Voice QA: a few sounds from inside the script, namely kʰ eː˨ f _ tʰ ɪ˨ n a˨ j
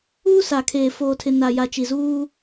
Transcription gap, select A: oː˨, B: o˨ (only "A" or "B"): A